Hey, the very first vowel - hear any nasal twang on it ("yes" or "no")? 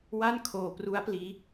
no